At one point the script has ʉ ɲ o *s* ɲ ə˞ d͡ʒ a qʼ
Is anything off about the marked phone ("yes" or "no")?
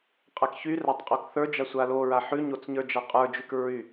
yes